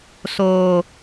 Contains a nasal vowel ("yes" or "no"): no